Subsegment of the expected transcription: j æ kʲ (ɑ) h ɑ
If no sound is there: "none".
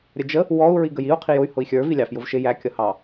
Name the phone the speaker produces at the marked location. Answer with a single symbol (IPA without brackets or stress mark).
ʌ